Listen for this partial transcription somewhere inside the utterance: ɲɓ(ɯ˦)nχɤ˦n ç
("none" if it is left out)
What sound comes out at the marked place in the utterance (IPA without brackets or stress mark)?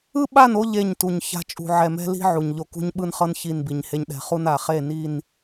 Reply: ɯ˦